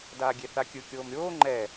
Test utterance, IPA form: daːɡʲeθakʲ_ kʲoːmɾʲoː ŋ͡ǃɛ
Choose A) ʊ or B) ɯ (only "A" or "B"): B